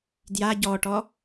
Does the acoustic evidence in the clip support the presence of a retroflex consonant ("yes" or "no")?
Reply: yes